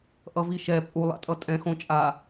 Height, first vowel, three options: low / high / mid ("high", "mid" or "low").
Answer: mid